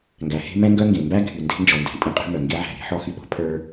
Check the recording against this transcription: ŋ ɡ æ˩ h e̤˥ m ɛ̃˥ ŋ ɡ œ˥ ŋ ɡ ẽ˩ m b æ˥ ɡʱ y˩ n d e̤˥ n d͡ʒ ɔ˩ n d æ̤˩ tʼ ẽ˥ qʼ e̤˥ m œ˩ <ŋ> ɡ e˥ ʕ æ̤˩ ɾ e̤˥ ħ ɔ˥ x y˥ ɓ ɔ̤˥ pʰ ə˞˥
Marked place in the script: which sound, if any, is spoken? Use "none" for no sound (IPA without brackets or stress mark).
ŋ